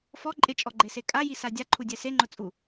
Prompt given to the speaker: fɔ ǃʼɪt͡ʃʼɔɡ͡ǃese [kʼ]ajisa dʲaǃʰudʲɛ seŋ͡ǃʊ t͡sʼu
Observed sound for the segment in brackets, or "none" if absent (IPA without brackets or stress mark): kʼ